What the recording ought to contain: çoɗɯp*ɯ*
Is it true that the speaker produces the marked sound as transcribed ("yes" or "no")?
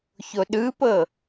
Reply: no